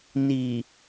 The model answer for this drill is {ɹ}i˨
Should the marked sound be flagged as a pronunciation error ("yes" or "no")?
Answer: yes